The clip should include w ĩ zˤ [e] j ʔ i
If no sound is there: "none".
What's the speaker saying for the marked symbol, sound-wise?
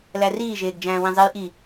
e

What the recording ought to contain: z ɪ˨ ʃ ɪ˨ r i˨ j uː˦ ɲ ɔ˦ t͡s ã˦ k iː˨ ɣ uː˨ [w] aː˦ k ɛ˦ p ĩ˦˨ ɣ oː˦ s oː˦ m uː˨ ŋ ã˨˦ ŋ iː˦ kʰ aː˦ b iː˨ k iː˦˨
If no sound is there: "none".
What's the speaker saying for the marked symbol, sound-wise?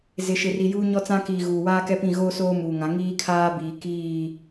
w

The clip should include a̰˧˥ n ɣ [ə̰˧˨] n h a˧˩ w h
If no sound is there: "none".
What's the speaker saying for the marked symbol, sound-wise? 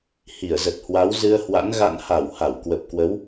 a̰˧˨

